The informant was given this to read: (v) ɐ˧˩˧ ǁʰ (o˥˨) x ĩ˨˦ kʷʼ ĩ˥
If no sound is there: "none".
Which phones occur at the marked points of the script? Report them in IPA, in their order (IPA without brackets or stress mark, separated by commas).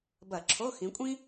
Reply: b, o˧˥˧